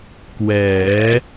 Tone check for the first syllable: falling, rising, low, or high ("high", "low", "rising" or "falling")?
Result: rising